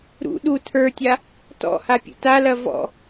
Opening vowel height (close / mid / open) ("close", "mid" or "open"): close